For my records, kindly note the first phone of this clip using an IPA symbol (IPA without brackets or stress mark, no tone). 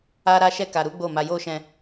a